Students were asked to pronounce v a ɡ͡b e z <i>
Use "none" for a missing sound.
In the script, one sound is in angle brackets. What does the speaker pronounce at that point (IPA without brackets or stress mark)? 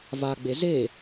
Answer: e